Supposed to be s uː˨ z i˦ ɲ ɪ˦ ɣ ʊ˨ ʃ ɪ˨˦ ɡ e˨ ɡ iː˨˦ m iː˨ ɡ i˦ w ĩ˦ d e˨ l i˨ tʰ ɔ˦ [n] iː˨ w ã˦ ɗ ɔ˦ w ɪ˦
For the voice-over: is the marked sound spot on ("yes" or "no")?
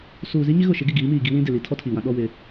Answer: no